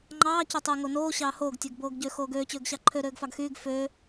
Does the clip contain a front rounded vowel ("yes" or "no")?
yes